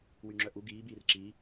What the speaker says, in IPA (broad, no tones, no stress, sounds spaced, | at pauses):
w y ŋ͡ǁ œ ʔ u ɡ iː b iː r ǁ i